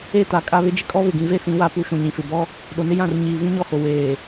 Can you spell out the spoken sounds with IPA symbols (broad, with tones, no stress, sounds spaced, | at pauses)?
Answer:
e˦˨ t a˨ kʼ a˦ β ɪ˦ d͡ʒ ɪ˦ kʼ ɔ˦ β ɪ˨ ɡ ĩ˨ v e˦ s ĩ˨˦ w a˦ p u˨˦ ʃ ũ˨ ɲ ĩ˨ f ɪ˨ b ɔ˦ | ɗ o˨ n ɪ˦ j ã˦˨ r ɲ iː˨ v ĩ˦ ɲ ɔ˦˨ h o˨ w eː˨